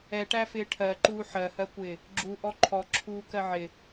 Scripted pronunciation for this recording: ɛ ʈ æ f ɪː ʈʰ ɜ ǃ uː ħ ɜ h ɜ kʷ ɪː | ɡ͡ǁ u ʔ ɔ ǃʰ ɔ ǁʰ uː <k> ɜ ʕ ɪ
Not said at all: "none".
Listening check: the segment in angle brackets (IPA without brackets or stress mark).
k